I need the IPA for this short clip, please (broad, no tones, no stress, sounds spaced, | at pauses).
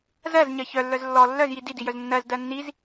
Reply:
z ɜ z ɲ ɜ ç œ lː œ z lː ɔ lː œ z j i d i d i j œ z nː ɜ z d ɜ nː i z